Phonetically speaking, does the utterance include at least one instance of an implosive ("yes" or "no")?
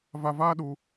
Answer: yes